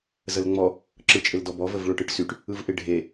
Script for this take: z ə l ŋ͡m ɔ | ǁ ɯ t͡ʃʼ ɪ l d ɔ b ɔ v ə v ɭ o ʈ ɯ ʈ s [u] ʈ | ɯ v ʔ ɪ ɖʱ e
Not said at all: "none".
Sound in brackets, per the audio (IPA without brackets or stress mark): y